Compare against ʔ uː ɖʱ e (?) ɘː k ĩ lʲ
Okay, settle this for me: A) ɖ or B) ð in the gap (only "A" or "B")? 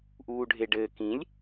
A